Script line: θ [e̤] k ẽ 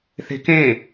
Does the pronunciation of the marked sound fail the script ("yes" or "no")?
no